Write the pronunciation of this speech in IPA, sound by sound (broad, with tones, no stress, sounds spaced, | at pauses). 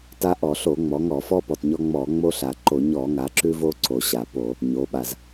t a˦ ʔ ɔ˧˩˧ ɬ o˧˩˧ ŋ͡m ɔ˩˧ ŋ ɔ˧˩˧ f ɔ˦ p ɔ˩ t ɲ ɔ˦ ŋ͡m ɔ˧˩˧ ŋ͡m o˦ ɬ a˩ ǃ o˧˩˧ ɲ ɔ˧˩˧ ŋ a˩˧ ǁ ʉ˦ v o˦ ǀ o˩ ɕ a˩ p o˧˩˧ | ɲ o˩˧ ɓ a˩ z